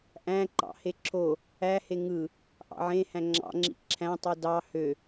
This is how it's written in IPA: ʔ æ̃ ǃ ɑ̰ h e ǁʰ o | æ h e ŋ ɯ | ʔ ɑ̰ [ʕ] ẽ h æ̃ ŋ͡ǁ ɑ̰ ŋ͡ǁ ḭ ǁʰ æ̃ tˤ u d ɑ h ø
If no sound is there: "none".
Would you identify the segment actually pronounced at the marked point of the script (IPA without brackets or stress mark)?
ʕ